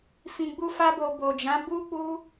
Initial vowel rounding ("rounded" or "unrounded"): unrounded